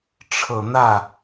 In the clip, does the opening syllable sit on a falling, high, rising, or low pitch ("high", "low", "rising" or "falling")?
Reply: low